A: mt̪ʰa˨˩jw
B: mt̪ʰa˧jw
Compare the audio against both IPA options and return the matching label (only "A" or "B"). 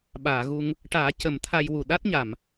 B